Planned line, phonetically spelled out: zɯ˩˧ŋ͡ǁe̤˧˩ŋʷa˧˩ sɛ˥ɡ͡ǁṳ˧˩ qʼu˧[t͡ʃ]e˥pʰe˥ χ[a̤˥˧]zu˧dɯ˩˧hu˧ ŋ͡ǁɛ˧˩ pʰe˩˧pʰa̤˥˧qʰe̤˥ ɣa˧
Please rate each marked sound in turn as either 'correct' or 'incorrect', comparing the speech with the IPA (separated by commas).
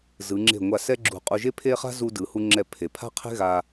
incorrect, incorrect